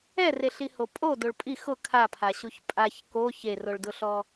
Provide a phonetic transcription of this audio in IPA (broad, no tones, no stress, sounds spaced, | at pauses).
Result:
ɛ r e ɬ i h o pʼ o d o ɭ pʼ i x ʊ kʰ a pʰ a ɕ u ç pʼ a ç k o ç e r o ɭ d ʊ ɬ ɔ